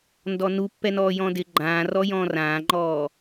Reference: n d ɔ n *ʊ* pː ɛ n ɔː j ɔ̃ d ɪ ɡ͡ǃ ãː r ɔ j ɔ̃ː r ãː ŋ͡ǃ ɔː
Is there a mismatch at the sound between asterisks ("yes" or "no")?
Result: yes